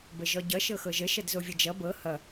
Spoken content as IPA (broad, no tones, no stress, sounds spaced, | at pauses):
b ə ʒ ɔ ɟ ʌ ʃ ɤ x ɤ ʒ ə ʃ ʌ d z o vʲ ʌ d͡ʒ ʌ b ɤ h ʌ